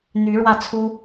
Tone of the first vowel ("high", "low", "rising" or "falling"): rising